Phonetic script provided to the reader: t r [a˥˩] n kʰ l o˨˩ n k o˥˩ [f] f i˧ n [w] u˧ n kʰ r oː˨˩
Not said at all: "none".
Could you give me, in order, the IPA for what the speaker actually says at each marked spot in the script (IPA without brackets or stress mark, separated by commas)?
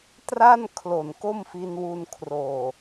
a˥˩, m, w